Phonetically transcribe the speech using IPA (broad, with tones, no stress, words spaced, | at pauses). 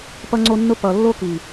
pʌ˦ŋ͡ǀo˦nːʊ˦ pʌ˧ lːo˦ki˨